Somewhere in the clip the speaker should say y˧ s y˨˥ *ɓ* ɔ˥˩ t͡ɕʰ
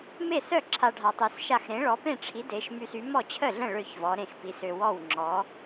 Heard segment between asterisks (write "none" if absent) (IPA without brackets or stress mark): m